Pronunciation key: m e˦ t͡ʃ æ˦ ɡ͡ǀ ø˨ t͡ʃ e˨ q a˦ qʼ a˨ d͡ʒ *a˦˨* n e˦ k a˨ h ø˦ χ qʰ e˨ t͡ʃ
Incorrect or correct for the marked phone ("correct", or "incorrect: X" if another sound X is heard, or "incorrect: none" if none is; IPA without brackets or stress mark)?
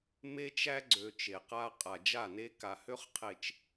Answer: correct